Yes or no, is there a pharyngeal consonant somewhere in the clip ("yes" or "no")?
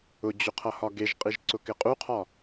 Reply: no